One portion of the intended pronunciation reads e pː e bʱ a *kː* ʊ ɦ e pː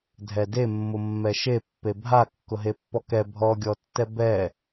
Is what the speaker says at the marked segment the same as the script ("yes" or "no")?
yes